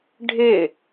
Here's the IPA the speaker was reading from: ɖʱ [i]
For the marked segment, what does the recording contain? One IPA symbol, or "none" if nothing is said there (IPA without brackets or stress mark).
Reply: ɪ